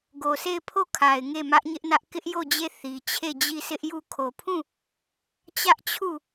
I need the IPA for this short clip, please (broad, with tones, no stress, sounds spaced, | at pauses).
ɡ o˨ sʰ e˦˨ ɪ̯ pʰ o˦˨ kʰ a˨ ɪ̯ ŋ e˦˨ m ä˦ ʔ ɲ ɪ˦ ʔ n ä˦ ʔ k ɪ˦ ʔ j o˦˨ d͡ʑ e˦˨ θ i˨ t͡ɕʰ e˦˨ d͡ʑ i˦˨ sʰ ɪ˦ ʔ j u˦˨ kʰ o˨ pʰ ũ˦˨ | t͡ɕ ä˦ ʔ t͡ɕʰ u˦˨